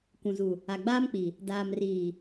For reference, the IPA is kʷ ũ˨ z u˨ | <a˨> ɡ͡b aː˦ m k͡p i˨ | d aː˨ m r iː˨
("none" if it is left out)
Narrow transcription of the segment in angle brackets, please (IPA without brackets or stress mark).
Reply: a˨